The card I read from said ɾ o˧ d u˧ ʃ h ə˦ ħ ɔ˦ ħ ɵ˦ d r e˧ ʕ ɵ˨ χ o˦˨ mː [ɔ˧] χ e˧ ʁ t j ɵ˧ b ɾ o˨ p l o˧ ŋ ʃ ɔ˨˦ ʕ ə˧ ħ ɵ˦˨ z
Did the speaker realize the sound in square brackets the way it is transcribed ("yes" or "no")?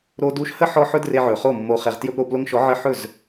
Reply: no